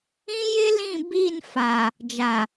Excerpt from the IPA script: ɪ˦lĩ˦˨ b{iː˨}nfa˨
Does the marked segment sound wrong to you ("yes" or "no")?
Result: yes